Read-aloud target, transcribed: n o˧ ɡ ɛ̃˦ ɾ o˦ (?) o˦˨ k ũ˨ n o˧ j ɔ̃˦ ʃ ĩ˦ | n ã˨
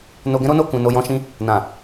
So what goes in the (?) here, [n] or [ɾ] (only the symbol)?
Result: n